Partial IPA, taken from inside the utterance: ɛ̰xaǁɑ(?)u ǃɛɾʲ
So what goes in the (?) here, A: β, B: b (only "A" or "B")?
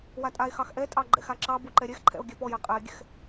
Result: B